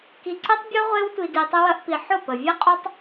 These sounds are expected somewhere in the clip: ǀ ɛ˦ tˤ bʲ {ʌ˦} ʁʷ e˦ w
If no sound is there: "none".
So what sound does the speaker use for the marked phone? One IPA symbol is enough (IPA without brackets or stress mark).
ɔ˦